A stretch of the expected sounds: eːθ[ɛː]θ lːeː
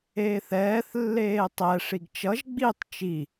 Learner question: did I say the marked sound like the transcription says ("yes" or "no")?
yes